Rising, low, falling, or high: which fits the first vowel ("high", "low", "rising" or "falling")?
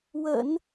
low